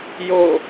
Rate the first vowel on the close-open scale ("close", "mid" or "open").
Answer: mid